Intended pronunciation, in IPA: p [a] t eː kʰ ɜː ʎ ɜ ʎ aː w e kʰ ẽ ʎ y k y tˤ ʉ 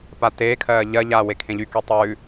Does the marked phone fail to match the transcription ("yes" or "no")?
no